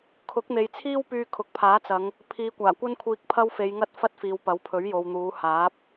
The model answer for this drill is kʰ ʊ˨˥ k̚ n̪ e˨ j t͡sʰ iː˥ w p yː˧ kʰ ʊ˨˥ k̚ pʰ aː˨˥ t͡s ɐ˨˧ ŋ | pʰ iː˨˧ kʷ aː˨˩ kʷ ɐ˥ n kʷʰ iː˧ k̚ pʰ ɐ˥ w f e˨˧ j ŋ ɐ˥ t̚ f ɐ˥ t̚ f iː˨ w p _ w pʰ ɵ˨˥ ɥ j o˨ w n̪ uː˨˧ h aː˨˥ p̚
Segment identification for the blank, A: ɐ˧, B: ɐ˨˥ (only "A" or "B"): B